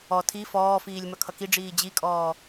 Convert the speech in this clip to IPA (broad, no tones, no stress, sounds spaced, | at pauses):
ɔ tʰ i f ɔː f iː lʲ m ʌ kʰ ʌ k i ɖ͡ʐ iː d͡ʑ i kʼ ɔː